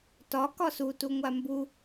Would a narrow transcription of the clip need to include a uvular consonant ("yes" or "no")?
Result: no